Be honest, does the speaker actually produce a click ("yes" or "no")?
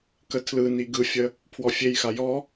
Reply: no